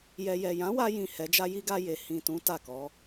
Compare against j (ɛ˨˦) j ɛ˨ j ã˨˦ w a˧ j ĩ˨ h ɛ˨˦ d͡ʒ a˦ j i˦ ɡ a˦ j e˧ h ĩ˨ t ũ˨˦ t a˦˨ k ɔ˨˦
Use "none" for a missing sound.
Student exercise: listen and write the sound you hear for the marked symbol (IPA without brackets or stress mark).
ɛ˨